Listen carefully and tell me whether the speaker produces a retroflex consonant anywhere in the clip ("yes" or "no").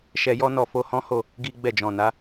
no